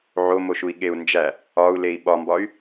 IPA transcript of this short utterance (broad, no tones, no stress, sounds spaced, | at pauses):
ʕ o m o ʃ u i̯ ɠ e u̯ n d͡ʒ æ | ɒ u̯ l e i̯ ɓ ɒ m b ɒ y̯